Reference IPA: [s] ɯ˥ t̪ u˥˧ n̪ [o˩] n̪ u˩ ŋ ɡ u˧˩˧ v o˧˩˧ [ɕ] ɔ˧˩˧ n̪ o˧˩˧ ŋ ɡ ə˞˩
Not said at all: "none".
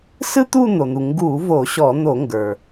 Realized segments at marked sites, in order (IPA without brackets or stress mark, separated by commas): s, o˩, ɕ